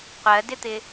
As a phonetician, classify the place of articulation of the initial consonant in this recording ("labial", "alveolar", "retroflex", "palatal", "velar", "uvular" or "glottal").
uvular